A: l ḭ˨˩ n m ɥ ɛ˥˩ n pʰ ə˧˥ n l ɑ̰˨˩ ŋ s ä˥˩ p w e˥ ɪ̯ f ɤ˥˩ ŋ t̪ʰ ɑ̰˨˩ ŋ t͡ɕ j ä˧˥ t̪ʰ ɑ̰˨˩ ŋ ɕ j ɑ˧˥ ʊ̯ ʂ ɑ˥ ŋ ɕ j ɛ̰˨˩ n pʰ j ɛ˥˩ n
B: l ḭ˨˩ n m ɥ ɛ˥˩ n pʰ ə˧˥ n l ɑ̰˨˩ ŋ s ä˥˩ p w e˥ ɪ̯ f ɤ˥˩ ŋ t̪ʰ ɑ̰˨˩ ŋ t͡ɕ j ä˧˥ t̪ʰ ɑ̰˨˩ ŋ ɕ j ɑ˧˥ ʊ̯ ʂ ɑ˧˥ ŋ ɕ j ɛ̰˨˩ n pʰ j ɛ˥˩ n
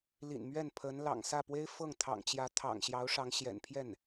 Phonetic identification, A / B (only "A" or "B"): B